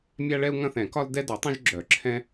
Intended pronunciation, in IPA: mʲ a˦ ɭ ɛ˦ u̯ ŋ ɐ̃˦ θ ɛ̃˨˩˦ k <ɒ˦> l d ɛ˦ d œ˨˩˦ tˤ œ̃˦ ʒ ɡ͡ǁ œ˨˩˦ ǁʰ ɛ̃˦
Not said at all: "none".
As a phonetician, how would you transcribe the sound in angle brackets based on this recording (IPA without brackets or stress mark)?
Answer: ɒ˦